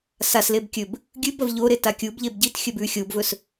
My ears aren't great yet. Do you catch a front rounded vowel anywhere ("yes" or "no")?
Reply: no